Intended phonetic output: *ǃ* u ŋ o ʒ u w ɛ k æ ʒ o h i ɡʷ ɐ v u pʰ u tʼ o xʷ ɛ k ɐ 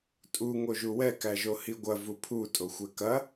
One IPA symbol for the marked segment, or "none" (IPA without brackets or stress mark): tʼ